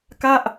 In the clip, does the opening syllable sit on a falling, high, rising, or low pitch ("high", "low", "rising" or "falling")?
falling